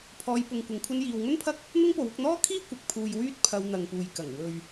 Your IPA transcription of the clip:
pʰ ɔː˧ j p ʊ˧ ŋ kʷ ɐ˧ ŋ kʷʰ ɐ˥ n j iː˨ w ŋ ɵ˥ n pʰ ɐ˥ k̚ | n̪ ʊ˥ ŋ p o˨˥ w ʊ˧ k̚ n̪ ɔː˥ kʰ iː˥ kʷ ɐ˨˥ k̚ pʰ uː˧ j w yː˥ t̚ pʰ ɐ˧ w n̪ ɐ˨ ŋ p uː˨ j k ɐ˨˩ ŋ w ɵ˨ ɥ

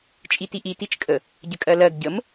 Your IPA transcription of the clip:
t͡ʃʼ i t i ʔ i t i t͡ʃ kʼ ə | ɟ ə kʼ ɜ l ɜ ɡ ɟ ə m

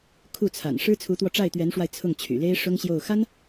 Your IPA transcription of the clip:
kʰ u˥˩ t͡sʰ a̰˨˩ n ʂ ɻ̩˥ t͡sʰ u˧˥ t̪ w ɔ˧ ʈ͡ʂ a˥˩ ɪ̯ t̪ ɥ ɛ˧˥ n ʂ w a˧ ɪ̯ t͡sʰ ʊ˥˩ ŋ t͡ɕʰ y̰˨˩ l e˥ ɪ̯ ʂ ʊ˥ ŋ ɕ j o˥˩ ʊ̯ x a˥ n

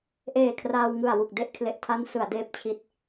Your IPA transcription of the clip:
ʔ eː˨˩ kʰ r aː˧ w ŋ ɯ˨˩ a̯ w u˨˩ k̚ d e˥˩ ʔ kʰ l e˨˩ ʔ tʰ a˦˥ n s ɯ˩˦ a̯ d eː˦˥ p̚ t͡ɕʰ i˦˥ t̚

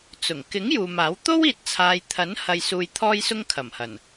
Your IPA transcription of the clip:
t͡s ʊ˨˩ ŋ k ɪ˨˥ ŋ j uː˨ m aː˨˥ w t̪ o˥ w iː˨ t̚ t͡sʰ aː˨ j t̪ʰ ɐ˨˥ n h ɐ˧ j s uː˧ j t̪ʰ ɔː˥ j s ʊ˥ ŋ kʰ ɐ˨˩ m h ɐ˨˩ n

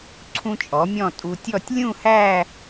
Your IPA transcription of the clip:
ǀʰ ũ˧ t͡ʃʼ ɔ˩˧ mʲ ɔ̃˧˩ tʼ u˧ tʲ ɔ˥˧ tʲ lʲ ũ˥˧ h æ˥˧

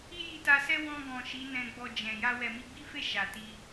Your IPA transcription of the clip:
i˦ j i˧ t a˧ s ɛ˦ w ɔ̃˧ ɡ ɔ̃˨ ʃ i˨˦ n ɛ̃˧ ɡ͡b ɔ˧ d͡ʒ ɛ̃˨ j a˧ w ɛ˨ m i˧ ɡ͡b i˦ f e˦˨ ʃ a˨ t i˧

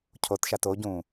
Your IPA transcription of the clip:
cʰ o t ʃ a t o ɟ ũː

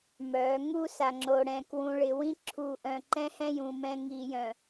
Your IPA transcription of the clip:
m œ˨˦ ŋ u˦ s a˨ ŋ͡ǁ o˨ ɽ ɛ̃˨ k w ũ˨ ɭ ɪ˨ w ĩ˦ ǁʰ u˨ ʔ œ̃˨ ǃ ɛ̃˦ h ɛ̃˦ j ũ˨ m ɛ̃˦ ŋ i˨ j œ̃˨

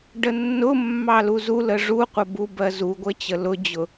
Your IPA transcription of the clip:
ɖ ə nː ʊ mː ɑ l u z u l ə ʐ u qʷ ʌ b u b ɜ z u ɡʷ ə t͡ɕ ə l ʊ d͡ʑ ʊ

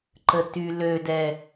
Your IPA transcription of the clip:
ǃ ə t y l ø d ɛ

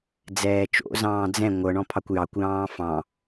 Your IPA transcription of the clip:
d͡z ɛː t͡ʃ o̰ z ɑ̃ː d͡z ɛ̃ ŋʷ ɤ ɳ ɔ̃ pʰ ɑ kʷ j ɑ kʷ j ɑ̃ː f ɑ̃

